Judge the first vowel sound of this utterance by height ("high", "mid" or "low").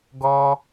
mid